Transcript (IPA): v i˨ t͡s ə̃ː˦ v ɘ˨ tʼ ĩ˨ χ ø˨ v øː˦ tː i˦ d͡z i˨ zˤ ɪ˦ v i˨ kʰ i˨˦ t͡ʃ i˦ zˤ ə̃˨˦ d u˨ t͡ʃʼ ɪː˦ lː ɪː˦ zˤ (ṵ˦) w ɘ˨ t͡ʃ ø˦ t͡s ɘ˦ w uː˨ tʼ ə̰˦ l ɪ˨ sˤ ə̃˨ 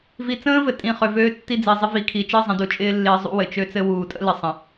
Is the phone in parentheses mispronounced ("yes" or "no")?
no